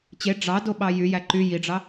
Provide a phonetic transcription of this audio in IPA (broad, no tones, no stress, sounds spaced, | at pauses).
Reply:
t͡ɕ e ɖ͡ʐ ɑ d o ɓ ɑ j y j æ ǃ y j i ɖ͡ʐ ɑ